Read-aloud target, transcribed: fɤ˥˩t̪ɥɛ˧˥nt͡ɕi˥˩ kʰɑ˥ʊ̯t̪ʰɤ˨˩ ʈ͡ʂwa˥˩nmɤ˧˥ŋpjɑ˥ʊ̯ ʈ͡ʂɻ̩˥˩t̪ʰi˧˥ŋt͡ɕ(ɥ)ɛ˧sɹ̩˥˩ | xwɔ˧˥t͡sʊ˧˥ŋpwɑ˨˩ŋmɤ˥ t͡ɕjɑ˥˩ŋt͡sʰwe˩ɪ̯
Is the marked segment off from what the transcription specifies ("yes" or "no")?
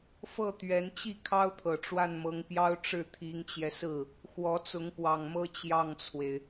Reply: yes